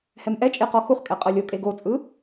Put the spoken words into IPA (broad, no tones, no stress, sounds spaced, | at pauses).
h ɛ m ʔ ɛ t͡ʃʼ e q ɔ x u χ kʼ ɛ qʼ ɤ lʲ o kʼ e ɡ o t͡sʼ ɯ